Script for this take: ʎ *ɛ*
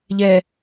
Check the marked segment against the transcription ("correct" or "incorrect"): correct